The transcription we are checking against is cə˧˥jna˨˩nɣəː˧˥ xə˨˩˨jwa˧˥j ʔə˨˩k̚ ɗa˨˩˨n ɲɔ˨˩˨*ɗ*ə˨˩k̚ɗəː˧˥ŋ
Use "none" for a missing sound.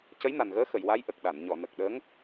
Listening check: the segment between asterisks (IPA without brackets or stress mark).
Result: n